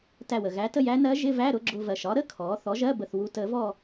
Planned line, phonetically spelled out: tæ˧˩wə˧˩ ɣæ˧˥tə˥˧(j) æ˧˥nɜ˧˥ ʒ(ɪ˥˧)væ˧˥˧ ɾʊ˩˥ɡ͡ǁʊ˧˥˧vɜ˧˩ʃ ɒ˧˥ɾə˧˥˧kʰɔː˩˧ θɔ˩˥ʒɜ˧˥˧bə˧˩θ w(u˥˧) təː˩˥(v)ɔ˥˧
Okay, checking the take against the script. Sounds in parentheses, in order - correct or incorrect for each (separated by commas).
correct, incorrect, incorrect, correct